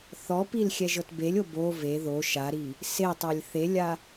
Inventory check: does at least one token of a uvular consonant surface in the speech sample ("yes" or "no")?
no